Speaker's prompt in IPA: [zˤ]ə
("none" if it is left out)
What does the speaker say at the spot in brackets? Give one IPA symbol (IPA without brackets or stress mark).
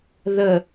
ð